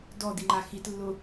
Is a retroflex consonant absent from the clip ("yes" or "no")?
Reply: yes